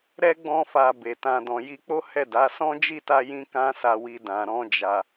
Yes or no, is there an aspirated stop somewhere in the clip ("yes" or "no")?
no